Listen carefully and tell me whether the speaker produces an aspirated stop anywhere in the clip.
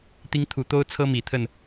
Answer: yes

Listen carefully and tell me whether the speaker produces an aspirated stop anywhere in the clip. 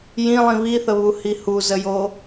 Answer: no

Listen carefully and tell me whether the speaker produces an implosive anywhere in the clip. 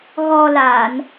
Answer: no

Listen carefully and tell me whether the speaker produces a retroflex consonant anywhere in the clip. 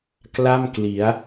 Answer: no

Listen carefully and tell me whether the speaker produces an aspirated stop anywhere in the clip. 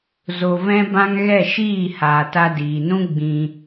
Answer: no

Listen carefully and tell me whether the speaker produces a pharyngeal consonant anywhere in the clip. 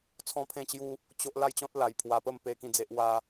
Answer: no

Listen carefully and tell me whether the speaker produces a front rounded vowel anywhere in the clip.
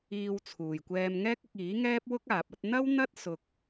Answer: no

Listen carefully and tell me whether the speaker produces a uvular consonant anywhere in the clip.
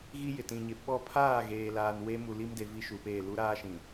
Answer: no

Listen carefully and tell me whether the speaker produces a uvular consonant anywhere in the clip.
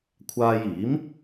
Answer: no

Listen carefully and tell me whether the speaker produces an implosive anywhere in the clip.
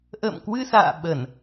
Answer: yes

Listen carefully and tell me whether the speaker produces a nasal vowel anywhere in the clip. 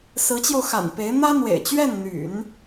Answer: no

